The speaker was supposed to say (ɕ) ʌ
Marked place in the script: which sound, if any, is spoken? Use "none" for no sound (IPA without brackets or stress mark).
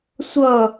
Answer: sʷ